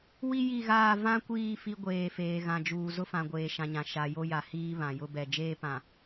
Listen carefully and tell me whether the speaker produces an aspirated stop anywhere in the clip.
no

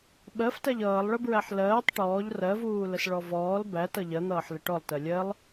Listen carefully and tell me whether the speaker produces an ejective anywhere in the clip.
no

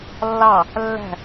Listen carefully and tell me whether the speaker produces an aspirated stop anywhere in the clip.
no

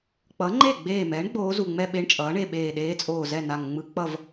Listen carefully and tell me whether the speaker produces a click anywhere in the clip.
yes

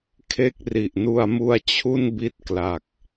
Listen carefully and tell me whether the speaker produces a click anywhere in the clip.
no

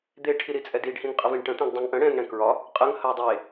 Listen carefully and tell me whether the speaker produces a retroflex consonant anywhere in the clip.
yes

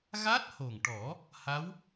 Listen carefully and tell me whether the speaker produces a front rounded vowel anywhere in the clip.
no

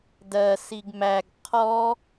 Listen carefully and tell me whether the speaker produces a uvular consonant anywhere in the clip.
yes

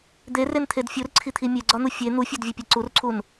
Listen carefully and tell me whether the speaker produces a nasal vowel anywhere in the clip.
no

